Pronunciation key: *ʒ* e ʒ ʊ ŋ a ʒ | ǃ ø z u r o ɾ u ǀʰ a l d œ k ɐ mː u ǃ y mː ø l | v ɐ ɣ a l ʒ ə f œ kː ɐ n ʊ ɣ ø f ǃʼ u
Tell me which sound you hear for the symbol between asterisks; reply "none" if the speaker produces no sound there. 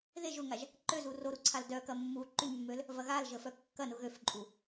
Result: ð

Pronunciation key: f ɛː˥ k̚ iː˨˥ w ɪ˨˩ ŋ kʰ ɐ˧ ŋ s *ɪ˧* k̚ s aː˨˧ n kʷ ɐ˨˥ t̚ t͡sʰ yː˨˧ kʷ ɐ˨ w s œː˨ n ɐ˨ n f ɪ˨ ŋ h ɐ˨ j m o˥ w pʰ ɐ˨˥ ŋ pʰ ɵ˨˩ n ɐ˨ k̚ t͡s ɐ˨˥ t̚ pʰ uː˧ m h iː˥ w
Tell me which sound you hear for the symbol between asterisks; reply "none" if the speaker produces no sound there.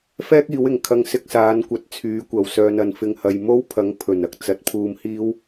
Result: ɪ˧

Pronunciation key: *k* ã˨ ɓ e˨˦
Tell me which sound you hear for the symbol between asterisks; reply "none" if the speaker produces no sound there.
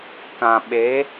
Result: k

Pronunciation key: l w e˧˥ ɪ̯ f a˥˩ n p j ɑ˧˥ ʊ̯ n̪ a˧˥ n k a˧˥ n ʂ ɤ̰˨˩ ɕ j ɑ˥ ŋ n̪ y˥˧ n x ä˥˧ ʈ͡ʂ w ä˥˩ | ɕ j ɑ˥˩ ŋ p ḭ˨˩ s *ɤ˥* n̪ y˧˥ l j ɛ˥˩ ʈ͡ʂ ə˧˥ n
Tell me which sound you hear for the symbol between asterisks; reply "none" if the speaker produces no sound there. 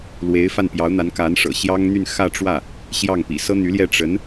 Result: ɤ˥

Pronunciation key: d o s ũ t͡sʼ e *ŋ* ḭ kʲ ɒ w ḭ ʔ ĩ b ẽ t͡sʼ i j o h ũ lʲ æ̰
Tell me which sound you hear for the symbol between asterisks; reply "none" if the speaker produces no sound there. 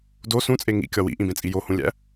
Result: ŋ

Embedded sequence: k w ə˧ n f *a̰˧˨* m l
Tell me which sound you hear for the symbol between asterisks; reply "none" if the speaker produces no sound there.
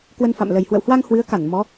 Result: a̰˧˨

